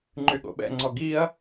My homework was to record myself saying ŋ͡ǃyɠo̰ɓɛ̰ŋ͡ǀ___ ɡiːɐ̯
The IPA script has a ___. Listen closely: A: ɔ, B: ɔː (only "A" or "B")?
A